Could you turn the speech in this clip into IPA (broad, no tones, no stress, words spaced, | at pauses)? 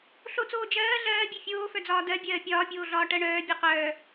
ɬot͡soː d͡ʒɜː ɮɜːbʲe fʲoːfœd͡zɒː dɜ bʲɜːpʲɒːpʲoːɮɒː ʈɜɳœː bʲoqœː